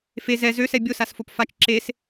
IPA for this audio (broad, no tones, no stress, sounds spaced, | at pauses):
f e z ɛ z ø s ɛ bʲ o s a s f o p f a t͡ʃ ǁ e s